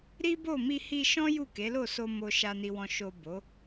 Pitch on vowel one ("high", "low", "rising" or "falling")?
high